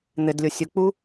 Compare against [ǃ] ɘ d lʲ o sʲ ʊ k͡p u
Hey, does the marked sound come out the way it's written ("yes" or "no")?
no